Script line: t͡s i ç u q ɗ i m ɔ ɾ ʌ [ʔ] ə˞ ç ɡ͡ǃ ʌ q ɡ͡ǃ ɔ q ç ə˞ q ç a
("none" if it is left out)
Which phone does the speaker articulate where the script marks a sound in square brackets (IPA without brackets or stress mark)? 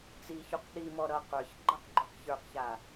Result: q